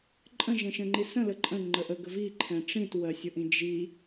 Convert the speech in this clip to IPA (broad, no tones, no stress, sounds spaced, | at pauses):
ǃʼ ə̃ ʒ ɛ̃ ʃ ə̃ ŋ͡ǃ i s ə̃ l ə ǃʼ ə̃ ŋ͡ǃ ə ʔ ə ɡ ə v i ǃʰ ɛ̃ ʈ͡ʂ ĩ t w ɜ sʲ ʊ ʔ ĩ d͡ʒ i